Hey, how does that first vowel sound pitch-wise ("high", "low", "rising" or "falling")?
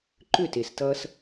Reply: falling